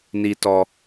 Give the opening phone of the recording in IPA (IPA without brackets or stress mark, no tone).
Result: n